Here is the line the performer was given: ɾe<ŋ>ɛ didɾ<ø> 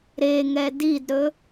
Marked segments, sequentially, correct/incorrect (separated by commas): correct, incorrect